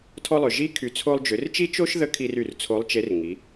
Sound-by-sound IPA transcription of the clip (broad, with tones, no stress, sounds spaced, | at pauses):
tʰ ɔ˧ lˠ ʏ˩ ʒ i˧˥ kʰ y˩˧ t͡sʰ o˧ lˠ d͡ʒ ʏ˩˧ r t͡ʃ i˥ t͡ʃ o˥ ʃ ð ə˧˥ kʰ i˧ r y˩ r t͡sʰ o˧˥ lˠ t͡ʃ e˧˥ r ŋ i˩˧